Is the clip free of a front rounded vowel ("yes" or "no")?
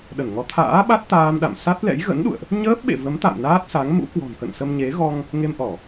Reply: yes